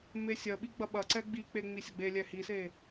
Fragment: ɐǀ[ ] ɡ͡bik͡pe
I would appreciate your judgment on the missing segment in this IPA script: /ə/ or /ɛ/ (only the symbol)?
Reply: ɛ